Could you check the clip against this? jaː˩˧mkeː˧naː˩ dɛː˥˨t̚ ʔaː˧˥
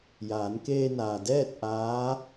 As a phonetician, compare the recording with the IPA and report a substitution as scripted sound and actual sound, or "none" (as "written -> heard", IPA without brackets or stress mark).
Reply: m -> n